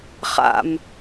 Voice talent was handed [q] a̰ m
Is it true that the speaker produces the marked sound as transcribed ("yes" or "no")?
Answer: no